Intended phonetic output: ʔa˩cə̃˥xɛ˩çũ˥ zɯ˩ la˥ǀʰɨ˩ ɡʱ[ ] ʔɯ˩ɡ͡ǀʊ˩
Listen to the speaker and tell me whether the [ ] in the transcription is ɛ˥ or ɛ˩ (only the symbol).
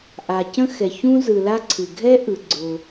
ɛ˥